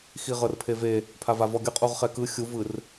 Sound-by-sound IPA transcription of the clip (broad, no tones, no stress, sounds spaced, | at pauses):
x i ʁ ɤ r pʰ e v e | pʰ a v a v ɔ ɡʲ ɤ qʼ u ʁ χ ɛ k ɯ xʲ u v ɯ r